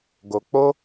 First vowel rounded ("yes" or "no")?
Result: yes